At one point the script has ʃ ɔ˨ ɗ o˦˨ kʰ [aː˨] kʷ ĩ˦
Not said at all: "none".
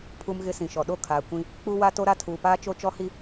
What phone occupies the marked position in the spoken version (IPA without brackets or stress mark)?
aː˨